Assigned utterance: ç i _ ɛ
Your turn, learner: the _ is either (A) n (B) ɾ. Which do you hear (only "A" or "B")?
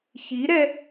B